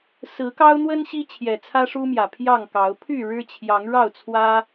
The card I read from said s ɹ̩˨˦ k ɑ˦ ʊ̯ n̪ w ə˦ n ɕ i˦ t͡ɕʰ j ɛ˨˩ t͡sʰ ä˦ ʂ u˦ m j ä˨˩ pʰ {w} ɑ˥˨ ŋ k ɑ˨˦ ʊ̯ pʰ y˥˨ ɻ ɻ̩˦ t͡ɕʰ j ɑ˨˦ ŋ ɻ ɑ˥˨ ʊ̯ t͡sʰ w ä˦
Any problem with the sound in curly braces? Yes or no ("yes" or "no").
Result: yes